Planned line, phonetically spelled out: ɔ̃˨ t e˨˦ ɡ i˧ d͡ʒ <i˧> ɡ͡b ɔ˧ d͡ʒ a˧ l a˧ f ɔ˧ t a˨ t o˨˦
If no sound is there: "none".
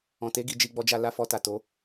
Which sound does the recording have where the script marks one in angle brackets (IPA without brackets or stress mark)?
i˧